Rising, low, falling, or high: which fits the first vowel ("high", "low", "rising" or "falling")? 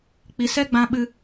low